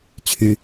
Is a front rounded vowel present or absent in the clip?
present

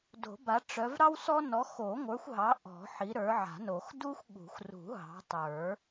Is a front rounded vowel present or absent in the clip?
present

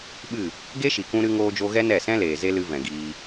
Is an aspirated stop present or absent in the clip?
absent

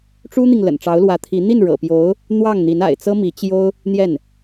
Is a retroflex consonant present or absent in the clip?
present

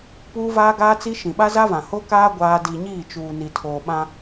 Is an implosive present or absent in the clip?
present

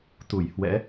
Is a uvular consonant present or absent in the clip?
absent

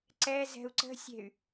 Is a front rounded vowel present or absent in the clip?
present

